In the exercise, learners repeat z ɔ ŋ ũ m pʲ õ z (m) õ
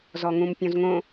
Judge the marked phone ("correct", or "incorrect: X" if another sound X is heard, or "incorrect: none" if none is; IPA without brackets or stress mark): incorrect: ŋ